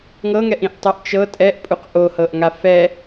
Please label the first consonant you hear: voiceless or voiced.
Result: voiced